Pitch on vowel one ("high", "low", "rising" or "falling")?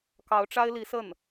rising